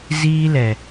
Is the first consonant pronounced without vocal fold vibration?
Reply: no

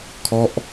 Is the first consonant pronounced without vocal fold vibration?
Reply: yes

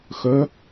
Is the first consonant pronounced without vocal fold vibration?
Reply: yes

